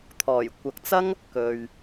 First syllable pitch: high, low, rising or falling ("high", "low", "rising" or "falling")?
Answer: low